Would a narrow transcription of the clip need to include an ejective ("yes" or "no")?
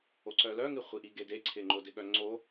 no